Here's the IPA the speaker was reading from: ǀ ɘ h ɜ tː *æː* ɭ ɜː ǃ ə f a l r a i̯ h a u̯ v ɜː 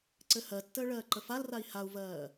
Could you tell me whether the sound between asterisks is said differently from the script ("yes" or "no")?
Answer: yes